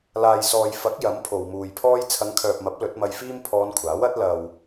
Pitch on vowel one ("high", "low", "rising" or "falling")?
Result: low